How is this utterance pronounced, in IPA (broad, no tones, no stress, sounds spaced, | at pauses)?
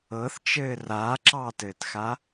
ɤ θ t͡ʃ ɘː r aː ǁ ɑː t ɘː t x a